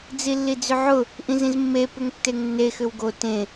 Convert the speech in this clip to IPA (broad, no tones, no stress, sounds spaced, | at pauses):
d͡z i lː i d͡z ʏ ʕ ʊ | ʔ ĩ z ĩ z mː e p ʏ ŋ tː e ŋ nː e x ʏ w ɡ o t ẽ